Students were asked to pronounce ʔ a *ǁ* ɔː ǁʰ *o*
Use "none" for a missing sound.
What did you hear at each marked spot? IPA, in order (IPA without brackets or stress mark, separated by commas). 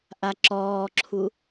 ǁ, u